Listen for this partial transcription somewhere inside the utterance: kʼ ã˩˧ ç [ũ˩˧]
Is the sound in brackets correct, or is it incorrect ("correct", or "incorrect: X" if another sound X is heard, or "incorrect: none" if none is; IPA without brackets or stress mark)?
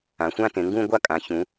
correct